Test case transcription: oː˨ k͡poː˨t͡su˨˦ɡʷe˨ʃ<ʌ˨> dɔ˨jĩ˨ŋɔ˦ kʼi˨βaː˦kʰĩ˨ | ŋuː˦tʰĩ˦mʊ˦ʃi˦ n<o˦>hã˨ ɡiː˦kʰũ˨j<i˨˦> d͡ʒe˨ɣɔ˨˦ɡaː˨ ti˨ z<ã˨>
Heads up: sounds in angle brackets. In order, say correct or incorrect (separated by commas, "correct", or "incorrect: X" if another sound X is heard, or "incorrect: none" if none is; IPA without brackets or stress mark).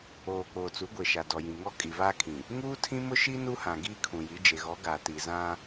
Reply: incorrect: a˨, incorrect: u˦, correct, incorrect: ã˦